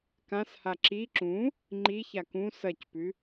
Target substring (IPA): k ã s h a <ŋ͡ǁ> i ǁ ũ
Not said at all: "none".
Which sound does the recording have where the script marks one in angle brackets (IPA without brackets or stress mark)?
ǁ